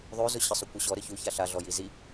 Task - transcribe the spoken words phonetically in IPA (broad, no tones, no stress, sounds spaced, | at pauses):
ðˤ ø z ʊ ɕ ə sˤ ʊ kʷ ə ɕ ɔ ɾ ə ç u ç a ɬ a ɮ ɔ j i z i